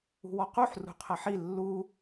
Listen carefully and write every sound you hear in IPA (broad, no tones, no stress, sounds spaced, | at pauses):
ṳ w ɔ q u ħ r ṳ qʰ ɐ ħ i lː u